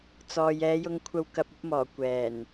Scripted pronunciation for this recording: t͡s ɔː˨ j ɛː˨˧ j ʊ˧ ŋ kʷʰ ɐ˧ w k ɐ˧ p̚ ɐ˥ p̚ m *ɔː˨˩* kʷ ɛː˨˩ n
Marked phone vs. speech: correct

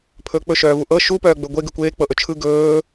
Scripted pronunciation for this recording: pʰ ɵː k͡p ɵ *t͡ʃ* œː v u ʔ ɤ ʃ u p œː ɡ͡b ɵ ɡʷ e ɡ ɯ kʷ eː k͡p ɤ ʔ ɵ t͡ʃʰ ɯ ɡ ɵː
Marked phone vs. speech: incorrect: ʃ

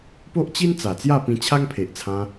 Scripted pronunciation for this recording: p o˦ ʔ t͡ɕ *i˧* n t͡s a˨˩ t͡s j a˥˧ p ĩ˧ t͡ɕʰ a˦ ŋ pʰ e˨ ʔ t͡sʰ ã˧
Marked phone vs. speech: incorrect: i˦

